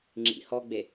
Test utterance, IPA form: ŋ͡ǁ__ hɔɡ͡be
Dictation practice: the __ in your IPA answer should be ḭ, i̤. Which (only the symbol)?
ḭ